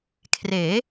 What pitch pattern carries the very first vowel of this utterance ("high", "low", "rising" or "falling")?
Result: rising